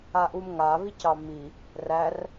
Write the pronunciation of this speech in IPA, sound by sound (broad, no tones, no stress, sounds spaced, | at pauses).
a ʔ u m ŋ a β i c ɑ m i | r æ r